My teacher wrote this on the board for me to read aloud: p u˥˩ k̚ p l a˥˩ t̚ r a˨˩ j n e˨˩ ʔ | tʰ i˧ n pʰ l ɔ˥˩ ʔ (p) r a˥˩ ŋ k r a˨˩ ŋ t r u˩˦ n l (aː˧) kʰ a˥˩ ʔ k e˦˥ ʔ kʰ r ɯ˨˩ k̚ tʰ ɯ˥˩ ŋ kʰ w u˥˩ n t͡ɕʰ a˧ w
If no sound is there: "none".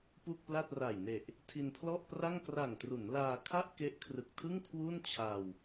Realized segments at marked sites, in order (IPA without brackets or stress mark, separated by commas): p, aː˧